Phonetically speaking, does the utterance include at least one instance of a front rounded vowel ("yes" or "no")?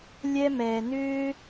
yes